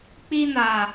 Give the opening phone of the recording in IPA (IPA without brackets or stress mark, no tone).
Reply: k͡p